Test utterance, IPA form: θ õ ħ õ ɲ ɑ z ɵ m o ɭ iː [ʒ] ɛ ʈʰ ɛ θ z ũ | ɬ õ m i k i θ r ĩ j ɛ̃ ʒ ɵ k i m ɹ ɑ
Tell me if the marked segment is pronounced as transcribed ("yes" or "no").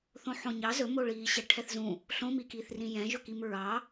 no